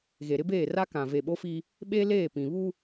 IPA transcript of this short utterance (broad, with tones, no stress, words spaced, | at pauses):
ɣe˨ɾɪ˦beː˦˨ra˦ kã˨ve˨ɓo˦ fi˦ | ɓe˦leː˦˨pĩ˨ βu˦